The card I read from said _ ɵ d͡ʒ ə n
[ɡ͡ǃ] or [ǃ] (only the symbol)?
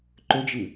ǃ